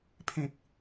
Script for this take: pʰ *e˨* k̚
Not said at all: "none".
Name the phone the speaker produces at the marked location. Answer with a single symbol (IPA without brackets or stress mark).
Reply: ẽ˨